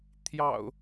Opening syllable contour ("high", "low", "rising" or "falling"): low